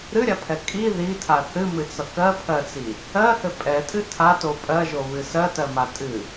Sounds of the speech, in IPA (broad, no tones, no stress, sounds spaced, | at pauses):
ɾ ɨ ɾʲ a pʰ ɛ kʼ i ð i tʰ a θ ɨ m ɨ t͡s ʌ k ɜ pʰ ɜ t͡s i | ɜ h ɘ pʼ ɛ tʼ ɨ tʰ a t o pʼ ɜ ʒ o β ɨ s ɜ t ɜ m a tʼ ɨ